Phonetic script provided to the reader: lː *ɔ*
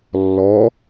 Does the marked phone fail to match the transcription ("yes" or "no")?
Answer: no